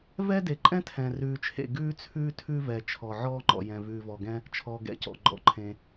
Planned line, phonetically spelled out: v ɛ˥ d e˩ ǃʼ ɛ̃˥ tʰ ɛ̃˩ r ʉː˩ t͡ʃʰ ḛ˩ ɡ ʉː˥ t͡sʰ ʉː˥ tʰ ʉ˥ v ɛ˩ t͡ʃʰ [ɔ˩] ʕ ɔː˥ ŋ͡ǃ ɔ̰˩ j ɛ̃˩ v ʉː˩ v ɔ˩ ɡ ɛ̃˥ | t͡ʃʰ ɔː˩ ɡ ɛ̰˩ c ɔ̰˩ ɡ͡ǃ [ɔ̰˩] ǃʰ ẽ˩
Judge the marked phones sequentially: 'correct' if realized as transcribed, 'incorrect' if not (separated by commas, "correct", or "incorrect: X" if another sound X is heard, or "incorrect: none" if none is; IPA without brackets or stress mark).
correct, correct